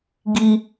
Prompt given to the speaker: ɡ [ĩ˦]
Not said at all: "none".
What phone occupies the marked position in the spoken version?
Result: i˦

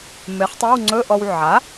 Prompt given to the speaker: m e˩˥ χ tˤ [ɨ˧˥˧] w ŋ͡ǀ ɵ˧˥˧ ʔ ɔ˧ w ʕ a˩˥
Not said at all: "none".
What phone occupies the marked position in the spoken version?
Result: e˧˥˧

